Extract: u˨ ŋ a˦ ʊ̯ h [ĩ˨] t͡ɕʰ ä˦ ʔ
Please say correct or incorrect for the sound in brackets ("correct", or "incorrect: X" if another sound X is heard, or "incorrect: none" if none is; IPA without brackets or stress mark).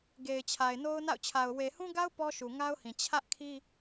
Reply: correct